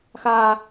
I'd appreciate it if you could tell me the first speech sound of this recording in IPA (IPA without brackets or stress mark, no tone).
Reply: x